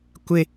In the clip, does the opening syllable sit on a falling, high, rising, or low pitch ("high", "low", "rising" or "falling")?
high